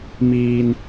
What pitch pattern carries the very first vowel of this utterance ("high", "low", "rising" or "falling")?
low